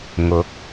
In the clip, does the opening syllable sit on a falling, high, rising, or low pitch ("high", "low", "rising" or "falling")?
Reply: rising